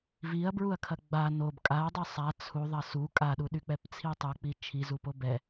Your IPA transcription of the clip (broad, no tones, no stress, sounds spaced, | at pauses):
v i ɐ̯ b ɹ u ɐ̯ kʰ ɐ ɡ͡b a n o b kʼ a dˤ y sˤ a t͡sʰ u ðˤ ɐ s u kʼ a ɗ u ɗ y k͡p ɛ p t͡sʰ i tˤ o k͡p i t͡ʃʰ i z u p o b ɛ